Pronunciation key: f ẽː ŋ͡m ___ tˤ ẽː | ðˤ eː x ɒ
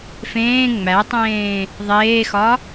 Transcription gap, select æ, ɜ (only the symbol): æ